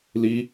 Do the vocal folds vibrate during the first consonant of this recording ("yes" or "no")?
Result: yes